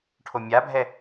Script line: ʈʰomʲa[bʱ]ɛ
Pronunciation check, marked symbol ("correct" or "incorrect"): correct